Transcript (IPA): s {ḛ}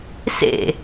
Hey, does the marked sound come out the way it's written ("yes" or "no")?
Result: yes